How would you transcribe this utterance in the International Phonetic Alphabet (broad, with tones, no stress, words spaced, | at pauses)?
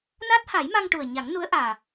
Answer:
naː˦˥t̚ha˨˩˦jma˧ŋ ʈu˨˩ə̯ɲa˨˩˦ŋnu˧˥ə̯ ʔaː˨˩